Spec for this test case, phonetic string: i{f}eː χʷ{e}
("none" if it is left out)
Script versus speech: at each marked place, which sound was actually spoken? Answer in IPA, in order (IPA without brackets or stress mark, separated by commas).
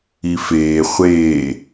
f, eː